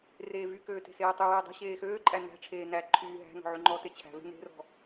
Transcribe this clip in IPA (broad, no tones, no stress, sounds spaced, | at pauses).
r eː v y k øː t e̤ s eː tˤ y w eː dˤ e̤ ɕ eː x øː ǃʼ æ n æ̤ ʈ͡ʂʰ eː n æ ǃʰ yː ɦ æ̤ n ɔ̤ ʕ y ŋ͡ǃ ɔ t e t͡ɕʰ æ̤ v e̤ n e̤ r ɔ̤